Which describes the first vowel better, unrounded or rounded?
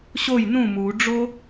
rounded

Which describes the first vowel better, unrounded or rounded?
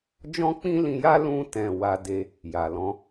rounded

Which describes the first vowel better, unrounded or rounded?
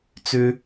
rounded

